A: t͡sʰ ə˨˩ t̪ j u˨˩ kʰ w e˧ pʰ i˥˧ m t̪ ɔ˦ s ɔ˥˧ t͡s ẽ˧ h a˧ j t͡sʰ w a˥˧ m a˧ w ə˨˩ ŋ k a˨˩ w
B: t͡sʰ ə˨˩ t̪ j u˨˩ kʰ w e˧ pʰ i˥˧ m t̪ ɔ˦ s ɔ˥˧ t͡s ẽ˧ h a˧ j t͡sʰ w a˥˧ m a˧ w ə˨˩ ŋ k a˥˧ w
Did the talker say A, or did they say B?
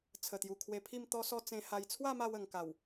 A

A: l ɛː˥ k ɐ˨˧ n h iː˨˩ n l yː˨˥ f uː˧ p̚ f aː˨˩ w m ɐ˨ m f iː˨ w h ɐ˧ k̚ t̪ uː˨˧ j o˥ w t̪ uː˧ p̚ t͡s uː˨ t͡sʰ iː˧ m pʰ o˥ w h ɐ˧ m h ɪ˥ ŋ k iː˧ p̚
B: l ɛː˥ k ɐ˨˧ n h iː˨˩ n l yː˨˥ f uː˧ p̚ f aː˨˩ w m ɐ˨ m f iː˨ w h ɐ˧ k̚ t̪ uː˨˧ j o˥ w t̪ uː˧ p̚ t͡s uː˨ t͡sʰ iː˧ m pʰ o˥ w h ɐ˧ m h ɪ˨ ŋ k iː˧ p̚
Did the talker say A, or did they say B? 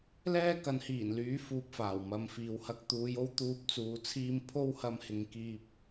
B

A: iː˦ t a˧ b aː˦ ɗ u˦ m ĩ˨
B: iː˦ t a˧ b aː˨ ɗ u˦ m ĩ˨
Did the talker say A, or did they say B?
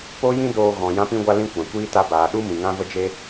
B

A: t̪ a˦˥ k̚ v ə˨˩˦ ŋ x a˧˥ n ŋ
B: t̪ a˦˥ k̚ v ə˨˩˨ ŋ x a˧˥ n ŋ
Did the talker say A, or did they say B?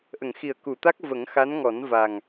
A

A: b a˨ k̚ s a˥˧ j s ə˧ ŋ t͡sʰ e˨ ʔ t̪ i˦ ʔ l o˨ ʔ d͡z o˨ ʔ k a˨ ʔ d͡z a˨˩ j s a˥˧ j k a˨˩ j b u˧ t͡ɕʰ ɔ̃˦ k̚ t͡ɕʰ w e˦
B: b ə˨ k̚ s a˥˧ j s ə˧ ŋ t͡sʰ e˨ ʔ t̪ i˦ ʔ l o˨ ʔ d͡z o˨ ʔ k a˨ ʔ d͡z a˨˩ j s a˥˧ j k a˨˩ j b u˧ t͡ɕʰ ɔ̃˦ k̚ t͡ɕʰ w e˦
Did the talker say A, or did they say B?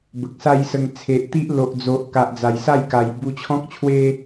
B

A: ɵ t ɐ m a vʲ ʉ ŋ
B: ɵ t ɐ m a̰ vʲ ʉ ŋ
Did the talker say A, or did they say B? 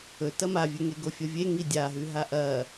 A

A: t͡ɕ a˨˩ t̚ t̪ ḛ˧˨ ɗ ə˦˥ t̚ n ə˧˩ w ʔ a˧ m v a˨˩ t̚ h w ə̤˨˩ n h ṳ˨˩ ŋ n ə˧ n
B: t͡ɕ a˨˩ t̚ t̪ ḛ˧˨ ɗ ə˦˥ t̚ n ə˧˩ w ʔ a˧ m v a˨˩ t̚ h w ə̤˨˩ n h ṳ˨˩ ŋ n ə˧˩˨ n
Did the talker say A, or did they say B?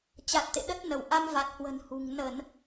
B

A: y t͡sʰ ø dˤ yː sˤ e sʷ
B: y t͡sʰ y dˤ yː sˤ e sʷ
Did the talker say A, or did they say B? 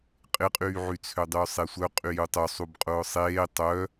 A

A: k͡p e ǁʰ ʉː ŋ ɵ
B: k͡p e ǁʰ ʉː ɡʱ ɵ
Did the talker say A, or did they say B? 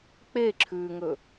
A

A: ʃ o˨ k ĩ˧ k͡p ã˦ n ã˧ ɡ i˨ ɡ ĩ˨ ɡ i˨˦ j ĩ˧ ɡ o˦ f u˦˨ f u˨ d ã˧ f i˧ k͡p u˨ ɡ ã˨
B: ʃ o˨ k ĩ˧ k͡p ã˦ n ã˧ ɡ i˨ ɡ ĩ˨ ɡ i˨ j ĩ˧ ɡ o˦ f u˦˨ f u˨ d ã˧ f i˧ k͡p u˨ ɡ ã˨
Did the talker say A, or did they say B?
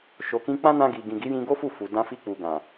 A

